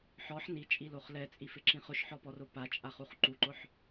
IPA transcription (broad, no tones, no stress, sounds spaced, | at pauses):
ħ ɔ ħ n i t͡ʃʼ i l o χ l ɛ t͡sʼ i f ɪ ǁ ĩ χ ʊ ʃ ħ ɔ p ɔ r ʊ p a t͡ʃʼ a χ u χ ǃ u ǃ ʊ ħ